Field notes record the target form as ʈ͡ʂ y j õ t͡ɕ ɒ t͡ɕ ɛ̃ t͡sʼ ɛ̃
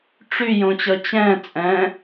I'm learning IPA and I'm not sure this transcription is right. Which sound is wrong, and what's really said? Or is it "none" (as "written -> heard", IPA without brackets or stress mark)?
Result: ɒ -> ʌ